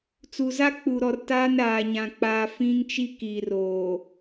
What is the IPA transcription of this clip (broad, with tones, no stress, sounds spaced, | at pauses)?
t͡s u˨ z a˦ k͡p u˨ ɾ ɔ˨ r t aː˦ n ɾ aː˨ ɲ ã˨ k͡p a˨ f ĩ˦ ŋ t͡ʃ i˦ k iː˨ r oː˨